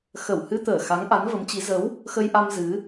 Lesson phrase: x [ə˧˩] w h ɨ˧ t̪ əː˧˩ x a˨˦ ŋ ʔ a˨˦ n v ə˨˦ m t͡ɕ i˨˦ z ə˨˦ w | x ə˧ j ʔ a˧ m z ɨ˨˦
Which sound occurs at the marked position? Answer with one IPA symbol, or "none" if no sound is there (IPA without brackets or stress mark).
ə˧˩